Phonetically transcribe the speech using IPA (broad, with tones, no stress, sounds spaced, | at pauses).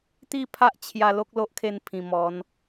t̪ i˥˧ pʰ a˦ ʔ t͡ɕʰ j a˧ l o˦ k̚ l o˦ ʔ kʰ e˧ n pʰ ĩ˨˩ m ɔ˨˦ n